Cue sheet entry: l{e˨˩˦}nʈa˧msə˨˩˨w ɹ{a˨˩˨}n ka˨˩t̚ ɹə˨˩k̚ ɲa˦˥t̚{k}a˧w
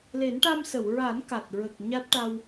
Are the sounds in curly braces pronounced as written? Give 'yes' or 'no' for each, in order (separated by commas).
yes, no, no